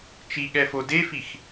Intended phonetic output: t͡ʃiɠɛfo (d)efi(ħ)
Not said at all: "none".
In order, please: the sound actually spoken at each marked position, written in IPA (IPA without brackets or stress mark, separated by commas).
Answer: d, x